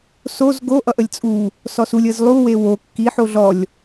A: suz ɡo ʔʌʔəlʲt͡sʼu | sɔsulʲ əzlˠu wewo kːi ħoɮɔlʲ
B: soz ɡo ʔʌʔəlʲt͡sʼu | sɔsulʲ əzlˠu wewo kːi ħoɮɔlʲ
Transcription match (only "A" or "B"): B